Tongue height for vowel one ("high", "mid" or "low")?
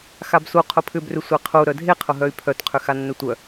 low